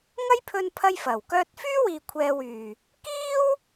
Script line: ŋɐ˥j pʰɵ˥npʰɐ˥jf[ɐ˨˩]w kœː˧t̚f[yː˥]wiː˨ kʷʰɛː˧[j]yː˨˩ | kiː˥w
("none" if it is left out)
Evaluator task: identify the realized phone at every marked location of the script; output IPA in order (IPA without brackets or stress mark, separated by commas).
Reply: ɐ˨˩, yː˥, w